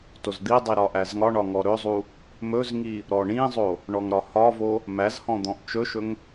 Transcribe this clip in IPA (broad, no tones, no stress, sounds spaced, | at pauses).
t o z d̪ i dˤ i ɾ ɒ ʔ æ z ŋ ɒ ɳ ɒ ŋ ɔ ɾ ɵ zˤ u | m ɵ z ŋ i | ɾ ɔ ɳ ĩ zˤ o | ɳ ɔ ŋ ɾ ɒ h ɒ v o | m æ z h ɔ̃ d̪ ɔ̃ ʔ t͡ʃ ɵ ʃ ɵ ŋ